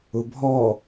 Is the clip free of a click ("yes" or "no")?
yes